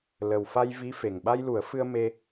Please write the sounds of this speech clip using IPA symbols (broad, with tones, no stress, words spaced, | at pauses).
lə˨˩wfa˧jvi˧˥ fe˨˩ŋɓa˧jlu˨˩˦ə̯fɨ˧ə̯ me˧